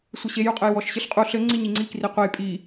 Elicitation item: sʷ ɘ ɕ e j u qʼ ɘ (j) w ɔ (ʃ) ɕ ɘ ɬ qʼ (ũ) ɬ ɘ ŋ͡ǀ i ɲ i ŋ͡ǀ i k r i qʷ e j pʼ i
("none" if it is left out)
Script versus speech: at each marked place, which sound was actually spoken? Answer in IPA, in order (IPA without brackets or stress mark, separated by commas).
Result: j, ʃ, u